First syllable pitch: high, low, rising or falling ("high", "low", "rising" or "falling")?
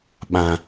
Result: low